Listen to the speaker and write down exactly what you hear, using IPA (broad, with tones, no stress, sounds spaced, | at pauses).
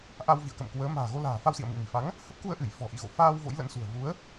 ʔ a˧ w v ḭ˧˨ ə̯ k ə̰˧˨ m k w əː˨˦ m a̤ː˨˩ ɣ o˧ l a̤ː˨˩ f a˧ w s ḭ˧˨ ə̯ m ḭ˧˨ m i˧˩ f a˨˦ ŋ | h ə˦˥ p̚ k u˧ ə̯ ʔ ɨ˧˩ j f ɔ̤˨˩ ʔ ḭ˧˨ ɣ o̰˧˨ f aː˧ w v o̰˧˥ j l ə̰˧˥ n s ṳ˨˩ ə̯ v u˨˦ ə̯